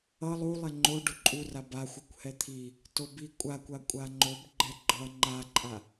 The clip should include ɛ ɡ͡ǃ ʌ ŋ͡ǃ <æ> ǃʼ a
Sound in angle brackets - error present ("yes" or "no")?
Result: yes